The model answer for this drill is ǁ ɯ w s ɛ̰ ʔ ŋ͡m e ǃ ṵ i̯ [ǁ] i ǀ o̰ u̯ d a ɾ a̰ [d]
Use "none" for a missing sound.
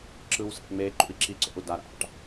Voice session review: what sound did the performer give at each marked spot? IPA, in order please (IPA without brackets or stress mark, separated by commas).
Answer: ǁ, ʈ